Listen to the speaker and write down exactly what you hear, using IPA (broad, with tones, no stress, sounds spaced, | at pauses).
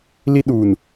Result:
l i˦ ɗ uː˨ n